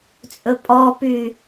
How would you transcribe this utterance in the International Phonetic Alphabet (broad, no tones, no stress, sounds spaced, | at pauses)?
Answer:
t͡sʼ ɵ pʼ ɔ p y